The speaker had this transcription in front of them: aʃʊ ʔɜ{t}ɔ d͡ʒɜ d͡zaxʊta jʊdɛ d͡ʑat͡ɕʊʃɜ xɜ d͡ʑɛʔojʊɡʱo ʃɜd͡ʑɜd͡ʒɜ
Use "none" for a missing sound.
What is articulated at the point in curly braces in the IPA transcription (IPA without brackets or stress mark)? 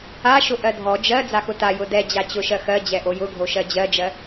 dʱ